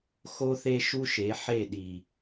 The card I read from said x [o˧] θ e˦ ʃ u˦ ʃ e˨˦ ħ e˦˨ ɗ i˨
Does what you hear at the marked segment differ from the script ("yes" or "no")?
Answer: yes